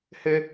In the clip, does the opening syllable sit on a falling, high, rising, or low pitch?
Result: high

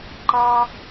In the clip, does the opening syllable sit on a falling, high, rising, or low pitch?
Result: high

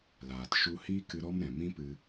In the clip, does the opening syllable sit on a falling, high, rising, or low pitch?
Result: low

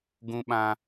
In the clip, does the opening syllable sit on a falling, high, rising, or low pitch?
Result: high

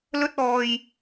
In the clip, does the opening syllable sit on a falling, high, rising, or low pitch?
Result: high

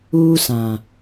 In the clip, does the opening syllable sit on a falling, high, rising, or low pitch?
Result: high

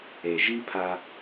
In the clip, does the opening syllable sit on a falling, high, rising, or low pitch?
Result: low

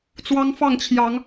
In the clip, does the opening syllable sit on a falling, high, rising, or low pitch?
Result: high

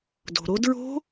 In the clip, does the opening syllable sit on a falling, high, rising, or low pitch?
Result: low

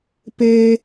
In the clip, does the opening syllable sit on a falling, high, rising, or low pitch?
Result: high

